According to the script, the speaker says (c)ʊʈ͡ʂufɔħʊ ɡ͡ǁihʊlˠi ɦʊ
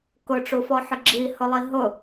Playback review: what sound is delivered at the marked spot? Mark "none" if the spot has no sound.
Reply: k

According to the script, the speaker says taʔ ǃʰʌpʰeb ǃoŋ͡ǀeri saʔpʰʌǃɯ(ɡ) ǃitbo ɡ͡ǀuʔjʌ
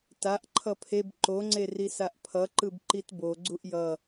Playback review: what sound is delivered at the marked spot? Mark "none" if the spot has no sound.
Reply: b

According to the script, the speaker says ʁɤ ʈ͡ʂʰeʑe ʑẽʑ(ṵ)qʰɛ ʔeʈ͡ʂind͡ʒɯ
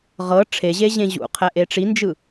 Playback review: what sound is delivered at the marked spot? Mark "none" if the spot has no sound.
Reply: ṵ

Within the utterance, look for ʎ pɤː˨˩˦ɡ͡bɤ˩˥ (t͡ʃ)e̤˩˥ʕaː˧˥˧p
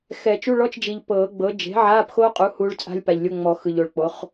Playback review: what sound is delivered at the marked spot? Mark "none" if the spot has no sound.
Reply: d͡ʒ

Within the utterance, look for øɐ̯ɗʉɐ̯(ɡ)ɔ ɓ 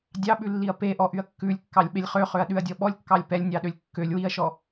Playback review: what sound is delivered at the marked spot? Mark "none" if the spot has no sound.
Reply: dʲ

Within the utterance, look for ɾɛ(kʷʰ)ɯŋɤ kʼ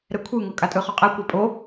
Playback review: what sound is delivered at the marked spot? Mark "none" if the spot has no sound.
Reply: kʷʰ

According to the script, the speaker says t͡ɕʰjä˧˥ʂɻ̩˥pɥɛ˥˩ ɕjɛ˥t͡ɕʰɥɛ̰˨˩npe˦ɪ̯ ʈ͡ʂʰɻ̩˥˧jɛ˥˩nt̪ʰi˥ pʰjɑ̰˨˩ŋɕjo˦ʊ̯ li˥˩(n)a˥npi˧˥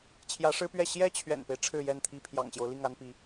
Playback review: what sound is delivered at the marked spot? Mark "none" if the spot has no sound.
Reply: ŋ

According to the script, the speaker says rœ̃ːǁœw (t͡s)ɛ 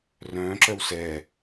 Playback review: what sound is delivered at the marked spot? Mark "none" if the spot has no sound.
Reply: s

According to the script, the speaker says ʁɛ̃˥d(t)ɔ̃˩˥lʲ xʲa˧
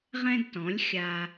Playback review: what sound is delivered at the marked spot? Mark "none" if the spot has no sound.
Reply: t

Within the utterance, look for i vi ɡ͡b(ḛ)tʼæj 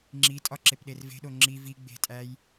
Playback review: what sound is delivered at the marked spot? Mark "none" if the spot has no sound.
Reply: e̤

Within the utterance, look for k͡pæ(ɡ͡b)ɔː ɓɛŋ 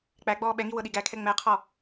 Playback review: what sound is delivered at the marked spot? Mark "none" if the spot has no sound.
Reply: ɡ͡b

